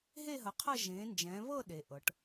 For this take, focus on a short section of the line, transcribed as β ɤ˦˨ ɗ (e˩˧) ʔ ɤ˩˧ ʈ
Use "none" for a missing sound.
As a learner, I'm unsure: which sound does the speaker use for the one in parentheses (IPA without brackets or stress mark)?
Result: e˩˧